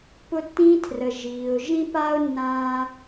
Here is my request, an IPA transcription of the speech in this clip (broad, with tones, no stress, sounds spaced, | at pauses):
p ʊ˧ tː ĩː˧ tʰ r ə˩ ʒ iː˩ ʊ̯ ʒ ĩ˥ p aː˥ ʊ̯ nː ãː˧